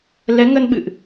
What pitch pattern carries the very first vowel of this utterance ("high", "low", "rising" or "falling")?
rising